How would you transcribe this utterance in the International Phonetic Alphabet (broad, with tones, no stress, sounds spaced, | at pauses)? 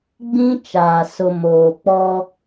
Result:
ɡ͡b ĩ˦ t͡ʃ aː˨ s ʊ˨ m oː˨ k͡p ɔ˦